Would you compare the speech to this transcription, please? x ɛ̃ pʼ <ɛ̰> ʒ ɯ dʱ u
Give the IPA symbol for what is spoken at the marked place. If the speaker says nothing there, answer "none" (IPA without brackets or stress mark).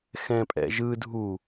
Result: ɛ̰